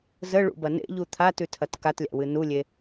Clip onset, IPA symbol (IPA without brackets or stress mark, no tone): z